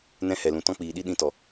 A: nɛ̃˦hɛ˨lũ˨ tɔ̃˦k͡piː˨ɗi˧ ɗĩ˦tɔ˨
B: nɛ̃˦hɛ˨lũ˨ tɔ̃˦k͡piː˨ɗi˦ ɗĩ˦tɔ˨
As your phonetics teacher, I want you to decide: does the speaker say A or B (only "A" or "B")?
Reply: B